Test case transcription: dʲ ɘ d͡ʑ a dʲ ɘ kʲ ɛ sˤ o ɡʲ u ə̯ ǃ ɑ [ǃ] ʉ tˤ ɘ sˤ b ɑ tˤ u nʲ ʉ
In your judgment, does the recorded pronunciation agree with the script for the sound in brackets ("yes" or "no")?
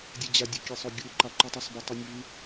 yes